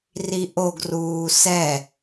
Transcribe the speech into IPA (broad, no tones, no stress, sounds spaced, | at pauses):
r i ʔ o ɡ r uː s ɛ